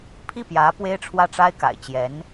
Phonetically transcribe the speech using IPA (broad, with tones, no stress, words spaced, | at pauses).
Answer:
pʰi˥˩pjä˧˥ pwe˥ɪ̯ʈ͡ʂʰwä˥˩ʈ͡ʂa˥ɪ̯ka̰˨˩ɪ̯ t͡ɕjɛ˧˥n